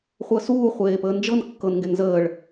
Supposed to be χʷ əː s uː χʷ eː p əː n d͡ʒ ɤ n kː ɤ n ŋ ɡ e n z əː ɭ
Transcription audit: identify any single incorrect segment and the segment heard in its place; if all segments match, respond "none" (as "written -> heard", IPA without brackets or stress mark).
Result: none